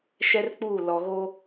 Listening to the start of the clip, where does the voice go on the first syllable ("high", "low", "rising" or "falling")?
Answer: high